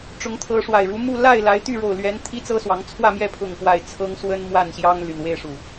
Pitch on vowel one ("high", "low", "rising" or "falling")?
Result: rising